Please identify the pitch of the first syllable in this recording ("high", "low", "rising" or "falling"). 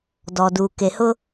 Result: low